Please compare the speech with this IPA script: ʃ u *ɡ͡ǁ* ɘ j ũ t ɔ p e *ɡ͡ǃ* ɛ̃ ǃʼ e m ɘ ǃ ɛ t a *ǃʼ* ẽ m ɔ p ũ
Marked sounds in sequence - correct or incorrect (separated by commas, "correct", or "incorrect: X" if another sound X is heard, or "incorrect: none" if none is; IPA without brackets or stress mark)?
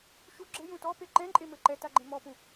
correct, incorrect: ǃ, incorrect: ɡ͡ǃ